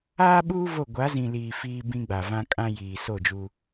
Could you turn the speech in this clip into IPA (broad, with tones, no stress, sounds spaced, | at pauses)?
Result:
aː˦ ɓ uː˦ v o˦˨ ɡʷ a˨˦ z ĩ˨ l iː˨ f iː˦ b ĩ˦ ɡ͡b a˨ v ã˦ kʼ ã˦ j iː˨ s o˦˨ d͡ʒ u˦